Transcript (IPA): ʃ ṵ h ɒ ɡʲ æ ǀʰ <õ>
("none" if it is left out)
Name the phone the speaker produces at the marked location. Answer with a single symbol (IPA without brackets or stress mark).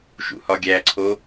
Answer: o